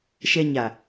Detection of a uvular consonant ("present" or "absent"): absent